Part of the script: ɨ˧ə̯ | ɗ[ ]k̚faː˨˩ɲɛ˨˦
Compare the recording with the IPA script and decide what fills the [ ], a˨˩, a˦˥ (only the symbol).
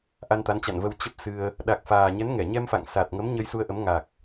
a˨˩